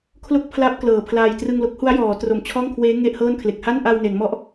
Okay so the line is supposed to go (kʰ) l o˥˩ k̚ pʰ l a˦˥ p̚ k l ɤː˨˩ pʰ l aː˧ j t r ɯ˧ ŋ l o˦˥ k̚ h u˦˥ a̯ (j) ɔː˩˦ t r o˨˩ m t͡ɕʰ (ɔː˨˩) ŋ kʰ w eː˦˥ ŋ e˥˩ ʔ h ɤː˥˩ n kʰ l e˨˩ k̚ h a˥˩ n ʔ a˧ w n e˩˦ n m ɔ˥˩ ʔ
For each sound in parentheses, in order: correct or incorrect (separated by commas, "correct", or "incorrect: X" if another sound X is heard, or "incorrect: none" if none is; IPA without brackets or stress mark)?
correct, correct, incorrect: ɔː˥˩